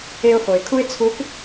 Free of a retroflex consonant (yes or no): yes